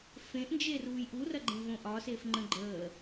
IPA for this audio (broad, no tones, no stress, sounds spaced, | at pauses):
f ẽ ʔ n d͡ʒ e r uː j ʔ u r ɐ ɡ͡ǃ ẽ v õ ʔ ɒ s e f ŋ͡ǃ ə̃ ɡ͡ǃ əː